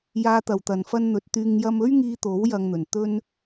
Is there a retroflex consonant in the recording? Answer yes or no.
no